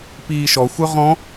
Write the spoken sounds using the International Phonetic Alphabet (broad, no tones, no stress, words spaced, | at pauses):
piːʃɔxʷœ ʁɔ̃